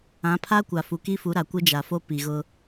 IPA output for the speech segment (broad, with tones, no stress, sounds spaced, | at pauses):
ã˨˦ pʰ a˦ kʷ a˨ f u˨ k i˦ f u˨˦ ɾ a˨ kʷ ɪ˦ d͡ʒ a˨ f o˦ p i˨ ɣ ʊ˦